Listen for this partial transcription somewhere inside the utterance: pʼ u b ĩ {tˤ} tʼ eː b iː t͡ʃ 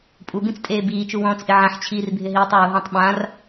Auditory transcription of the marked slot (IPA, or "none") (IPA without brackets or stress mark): t͡s